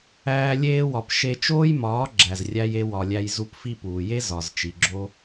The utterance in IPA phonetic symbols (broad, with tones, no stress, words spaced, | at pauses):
æː˧ lʲeː˧wɒ˨p ʃe˧t͡ʃoː˦jmɒː˨˦ ɡ͡ǁæ˨zrʲæ˧je˧ wɒ˨lʲæ˧jzu˧pfi˦ puː˨je˦ zɒ˨z t͡ʃi˨ɡ͡ǁo˦